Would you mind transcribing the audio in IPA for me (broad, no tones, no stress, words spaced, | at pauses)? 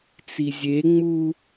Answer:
t͡sizʲeŋ͡mu